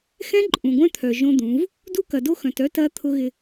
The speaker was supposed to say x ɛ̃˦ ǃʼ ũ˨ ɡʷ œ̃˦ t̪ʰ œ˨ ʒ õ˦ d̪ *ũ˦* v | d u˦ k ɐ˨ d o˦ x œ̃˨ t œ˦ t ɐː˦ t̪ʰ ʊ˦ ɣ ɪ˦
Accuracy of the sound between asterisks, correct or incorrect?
incorrect